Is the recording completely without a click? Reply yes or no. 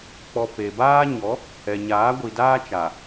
yes